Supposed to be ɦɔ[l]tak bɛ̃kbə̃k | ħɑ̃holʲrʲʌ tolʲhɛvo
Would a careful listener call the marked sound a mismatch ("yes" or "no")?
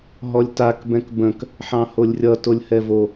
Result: yes